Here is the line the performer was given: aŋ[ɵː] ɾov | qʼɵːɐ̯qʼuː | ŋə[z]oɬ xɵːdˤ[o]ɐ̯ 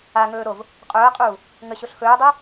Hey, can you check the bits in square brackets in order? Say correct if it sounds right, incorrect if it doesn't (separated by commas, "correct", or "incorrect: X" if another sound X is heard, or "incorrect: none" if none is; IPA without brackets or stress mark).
correct, incorrect: ɕ, incorrect: ɵ